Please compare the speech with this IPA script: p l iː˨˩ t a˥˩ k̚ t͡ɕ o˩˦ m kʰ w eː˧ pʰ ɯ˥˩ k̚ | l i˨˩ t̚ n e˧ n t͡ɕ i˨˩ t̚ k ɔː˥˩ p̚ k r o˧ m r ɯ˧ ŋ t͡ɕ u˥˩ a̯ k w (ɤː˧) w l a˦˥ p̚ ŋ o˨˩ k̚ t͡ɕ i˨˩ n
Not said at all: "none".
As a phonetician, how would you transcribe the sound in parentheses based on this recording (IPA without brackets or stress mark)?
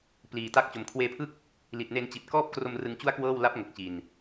ɤː˥˩